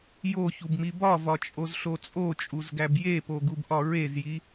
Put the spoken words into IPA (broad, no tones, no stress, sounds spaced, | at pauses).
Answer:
j o ç u b m i b ɒ v ɒ t͡ʃʼ o z ɬ o t͡sʼ o t͡ʃʼ u z ɡ æ b j e p o ɡ u b ʔ ɒ ɹ e z j i